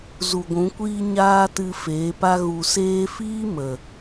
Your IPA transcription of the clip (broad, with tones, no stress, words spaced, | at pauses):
zu˨ɡʷũ˨˦kʷiː˦ ɲaː˦tɨ˧ feː˨˦pa˦ ɣu˨seː˧fiː˦ mə˨